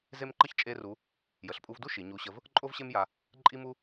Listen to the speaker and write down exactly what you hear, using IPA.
ze˥mǃə˥ç t͡ʃʼe˥ru˧˥ | jə˩˧ɬpʼu˧vdu˥ ʃi˩˧ɲu˧˥ɕə˧˥v | ǃʼo˥vɕe˥mja˧ | ǃʼi˥mu˥

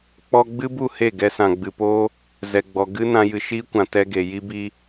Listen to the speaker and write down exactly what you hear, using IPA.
k͡pɔ˧ɡ͡bɨ˦bu˦˨ he˦˨ɡɛ˧sã˨ ɡ͡bɨ˨poː˦ | zɛ˨ɡ͡bɔ˨ ɡɨ˦ nã˧jɨ˨ʃiː˦kʷã˨ tɛ˧ɡe˨ ji˧bi˧

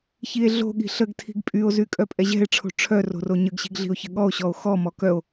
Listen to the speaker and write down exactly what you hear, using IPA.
çie̯ɮo̤ɠi̤ ɬəɡ tʰi̤ɡpʼyo̯zy kʼœpʼɛʑɛ̤e̯ʈ͡ʂʰo̤ ʈ͡ʂʰœ ro̤roɲəɡɕi̤ɡ ɮi̤o̯çəɠɔo̯ɕɔo̯ xɔmɔ kœo̯

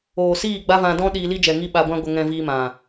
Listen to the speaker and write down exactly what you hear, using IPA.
oː˨siː˦˨ ɡ͡ba˦vã˧dɔ̃˦ ɗiː˧li˦d͡ʒɛ˨ ŋi˦ ɓa˧ɡʷã˦ ɡʷə˧ŋɛ̃˧ viː˧mã˨

